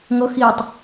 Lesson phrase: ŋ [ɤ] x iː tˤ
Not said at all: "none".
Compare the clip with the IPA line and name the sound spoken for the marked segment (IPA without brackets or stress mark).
ɤ